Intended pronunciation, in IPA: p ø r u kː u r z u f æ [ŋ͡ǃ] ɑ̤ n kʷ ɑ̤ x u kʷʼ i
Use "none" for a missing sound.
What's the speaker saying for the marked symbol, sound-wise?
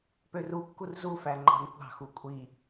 ŋ͡ǃ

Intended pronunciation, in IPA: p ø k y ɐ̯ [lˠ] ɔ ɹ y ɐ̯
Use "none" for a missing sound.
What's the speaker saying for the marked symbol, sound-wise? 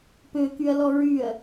l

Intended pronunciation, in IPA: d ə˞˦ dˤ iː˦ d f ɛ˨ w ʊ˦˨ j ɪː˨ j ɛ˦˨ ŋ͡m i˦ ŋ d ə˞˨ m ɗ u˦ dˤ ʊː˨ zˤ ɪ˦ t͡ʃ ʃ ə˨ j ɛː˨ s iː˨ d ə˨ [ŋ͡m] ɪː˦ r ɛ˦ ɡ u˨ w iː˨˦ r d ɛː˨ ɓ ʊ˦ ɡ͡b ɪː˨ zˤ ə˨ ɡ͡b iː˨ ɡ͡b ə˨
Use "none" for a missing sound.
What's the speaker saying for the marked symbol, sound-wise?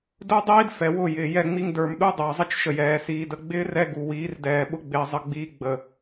ɡ͡b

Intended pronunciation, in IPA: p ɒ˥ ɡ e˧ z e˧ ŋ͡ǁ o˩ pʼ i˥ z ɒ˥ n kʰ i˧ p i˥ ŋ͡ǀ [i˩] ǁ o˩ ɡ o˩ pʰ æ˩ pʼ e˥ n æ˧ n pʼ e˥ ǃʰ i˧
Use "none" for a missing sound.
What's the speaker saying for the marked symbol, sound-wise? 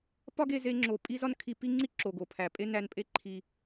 i˥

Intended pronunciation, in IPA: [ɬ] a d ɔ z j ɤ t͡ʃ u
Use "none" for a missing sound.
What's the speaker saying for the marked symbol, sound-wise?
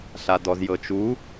ɬ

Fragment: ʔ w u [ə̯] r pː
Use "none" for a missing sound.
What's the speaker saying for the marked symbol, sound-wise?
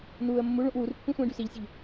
none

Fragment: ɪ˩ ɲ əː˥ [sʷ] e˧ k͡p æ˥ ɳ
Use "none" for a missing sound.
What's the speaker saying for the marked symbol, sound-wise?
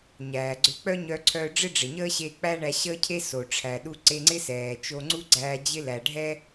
ɕ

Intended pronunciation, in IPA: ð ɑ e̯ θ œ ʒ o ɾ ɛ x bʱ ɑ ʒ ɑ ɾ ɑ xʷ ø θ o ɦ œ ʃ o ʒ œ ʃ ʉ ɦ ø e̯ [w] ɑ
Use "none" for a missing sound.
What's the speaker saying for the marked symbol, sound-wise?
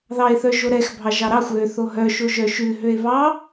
β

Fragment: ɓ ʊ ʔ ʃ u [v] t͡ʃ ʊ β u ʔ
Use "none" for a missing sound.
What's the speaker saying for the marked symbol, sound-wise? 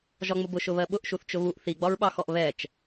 θ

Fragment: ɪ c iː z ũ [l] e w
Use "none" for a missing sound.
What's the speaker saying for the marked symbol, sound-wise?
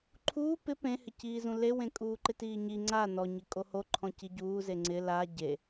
l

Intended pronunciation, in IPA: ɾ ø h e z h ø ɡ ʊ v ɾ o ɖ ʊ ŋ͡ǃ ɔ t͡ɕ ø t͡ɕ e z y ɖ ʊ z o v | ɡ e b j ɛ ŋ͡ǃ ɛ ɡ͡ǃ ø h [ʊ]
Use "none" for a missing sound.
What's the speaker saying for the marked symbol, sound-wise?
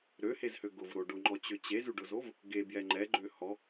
ɔ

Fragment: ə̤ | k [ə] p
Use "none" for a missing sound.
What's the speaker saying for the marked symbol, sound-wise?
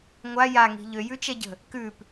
ʉ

